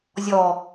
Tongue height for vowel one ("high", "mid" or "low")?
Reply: mid